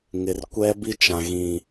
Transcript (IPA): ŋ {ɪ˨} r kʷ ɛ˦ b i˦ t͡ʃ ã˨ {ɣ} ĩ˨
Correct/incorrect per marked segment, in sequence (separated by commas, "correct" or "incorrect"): correct, correct